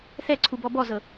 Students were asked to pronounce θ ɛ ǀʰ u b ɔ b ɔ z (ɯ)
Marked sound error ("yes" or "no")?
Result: yes